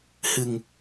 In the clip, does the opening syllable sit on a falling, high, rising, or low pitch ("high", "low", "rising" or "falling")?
low